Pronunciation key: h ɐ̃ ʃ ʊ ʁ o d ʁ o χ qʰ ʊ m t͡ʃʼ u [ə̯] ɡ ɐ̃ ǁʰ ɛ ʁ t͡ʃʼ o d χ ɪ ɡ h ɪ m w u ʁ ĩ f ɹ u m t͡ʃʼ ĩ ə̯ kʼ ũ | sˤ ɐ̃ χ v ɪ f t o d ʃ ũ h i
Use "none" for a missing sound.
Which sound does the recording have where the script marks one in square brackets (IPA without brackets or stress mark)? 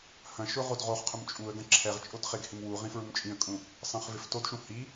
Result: ə̯